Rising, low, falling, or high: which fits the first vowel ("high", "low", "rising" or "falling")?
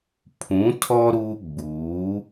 rising